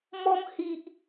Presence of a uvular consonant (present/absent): absent